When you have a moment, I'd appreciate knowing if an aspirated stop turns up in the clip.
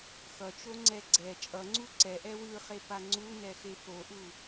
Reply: no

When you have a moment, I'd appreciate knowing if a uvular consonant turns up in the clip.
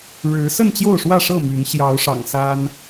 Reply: no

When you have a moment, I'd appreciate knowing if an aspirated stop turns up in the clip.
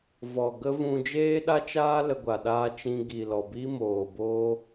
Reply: no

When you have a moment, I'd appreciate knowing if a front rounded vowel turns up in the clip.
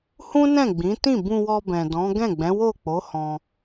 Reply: no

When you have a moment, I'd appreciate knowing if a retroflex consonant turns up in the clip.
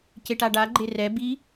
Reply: yes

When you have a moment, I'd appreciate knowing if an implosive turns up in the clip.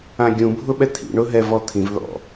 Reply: yes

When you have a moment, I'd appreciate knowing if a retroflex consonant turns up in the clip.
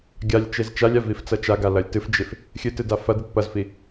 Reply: no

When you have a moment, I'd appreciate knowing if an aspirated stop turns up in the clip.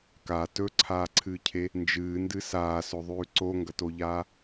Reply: yes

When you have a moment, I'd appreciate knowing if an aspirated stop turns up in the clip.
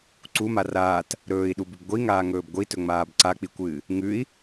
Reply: no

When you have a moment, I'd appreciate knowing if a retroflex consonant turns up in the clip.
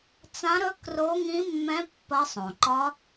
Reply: no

